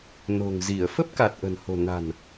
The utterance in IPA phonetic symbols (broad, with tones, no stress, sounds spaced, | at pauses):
n o̤˨˩ ŋ z i˧˩ ə̯ f ə˦˥ p̚ k a˨˩ t̚ ʔ ə̤˨˩ n h o̤˨˩ n a̤˨˩ n